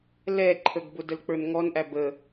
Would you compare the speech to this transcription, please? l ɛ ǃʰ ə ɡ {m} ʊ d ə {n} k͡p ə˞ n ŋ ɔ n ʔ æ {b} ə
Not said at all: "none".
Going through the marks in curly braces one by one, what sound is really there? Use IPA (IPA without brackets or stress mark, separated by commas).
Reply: b, l, b